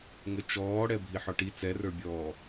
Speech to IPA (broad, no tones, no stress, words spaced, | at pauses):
ŋət͡ʃɔːɽɛ bʱiħɔʈi t͡sɛrə˞bʲɔː